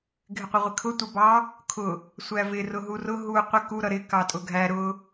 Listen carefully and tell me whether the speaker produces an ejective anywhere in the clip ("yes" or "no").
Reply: yes